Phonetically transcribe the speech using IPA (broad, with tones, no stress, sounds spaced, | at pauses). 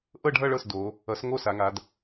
ʔ ɤ˥˧ ɖʱ ʌ˥˧ ɭ ɤ˥˩ s d o˩˧ | ʌ˩˧ s ŋ o˥˧ s a˩˧ ŋ a˩˧ d